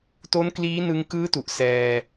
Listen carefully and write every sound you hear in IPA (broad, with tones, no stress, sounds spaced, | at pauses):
t o˦˥ n k l iː˦˥ n ɯ˧ ŋ k ɯː˦˥ t u˨˩ ʔ s ɛː˧